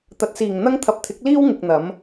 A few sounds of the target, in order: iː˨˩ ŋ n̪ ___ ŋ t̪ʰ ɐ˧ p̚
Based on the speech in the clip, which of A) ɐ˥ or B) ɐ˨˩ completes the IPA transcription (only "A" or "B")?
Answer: A